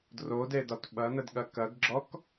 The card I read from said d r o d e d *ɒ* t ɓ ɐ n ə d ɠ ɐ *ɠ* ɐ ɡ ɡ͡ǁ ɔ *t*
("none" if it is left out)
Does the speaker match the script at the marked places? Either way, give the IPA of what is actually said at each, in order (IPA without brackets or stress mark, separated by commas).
ɒ, k, k